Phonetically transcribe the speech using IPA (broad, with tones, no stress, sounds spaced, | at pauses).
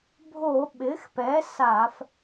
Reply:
bʱ o˧˩˧ ɓ ɪ˩˥ x p ɛ˩˥ s a˧˩˧ f